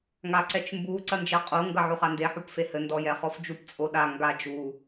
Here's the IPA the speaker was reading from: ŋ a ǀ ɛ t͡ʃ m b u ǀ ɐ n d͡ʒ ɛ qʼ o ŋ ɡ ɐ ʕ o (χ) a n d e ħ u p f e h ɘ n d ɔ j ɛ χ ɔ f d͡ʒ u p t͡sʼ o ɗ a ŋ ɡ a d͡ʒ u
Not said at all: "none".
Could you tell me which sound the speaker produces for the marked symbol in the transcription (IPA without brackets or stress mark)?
χ